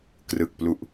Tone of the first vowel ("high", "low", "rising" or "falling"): low